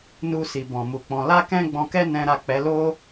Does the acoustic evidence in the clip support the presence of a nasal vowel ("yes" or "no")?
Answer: yes